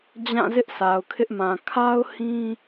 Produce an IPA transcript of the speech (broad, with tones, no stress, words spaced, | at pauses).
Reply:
d͡ʑã˦˨zɪ˦ʔ sa˨ʊ̯kʰɪ˦ʔmã˨ kʰa˦ʊ̯ hĩ˦